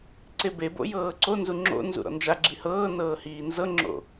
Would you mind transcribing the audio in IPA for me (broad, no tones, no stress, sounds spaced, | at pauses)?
ǀ e b e b o̰ j ɤː ǀ o n z u ŋ͡ǁ o̰ n z ṵ ɾ ɔ̰ n d͡ʒ a ɡ͡ǁ i h ɤː n ɤː h iː n z ɤ ŋ͡ǁ o̰